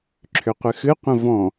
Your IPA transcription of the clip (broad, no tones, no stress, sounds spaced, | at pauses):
ǁʰ ʏ qʷ ɨ x ɨ qʷ ə̃ v ɔ̃